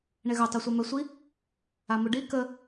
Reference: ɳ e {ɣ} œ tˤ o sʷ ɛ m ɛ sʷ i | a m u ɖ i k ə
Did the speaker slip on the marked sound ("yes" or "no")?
no